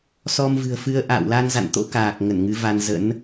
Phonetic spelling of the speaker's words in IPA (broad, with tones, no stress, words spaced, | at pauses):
sɔ˧mvɨ̤˨˩ə̯fɨ˧ə̯ ʔa̰ː˧˨wla˧nza̰˧˨nt̪o̰˧˥ kaː˨˩k̚ ŋə˧˩nŋɨ˨˦va˧n zə̰˧˥n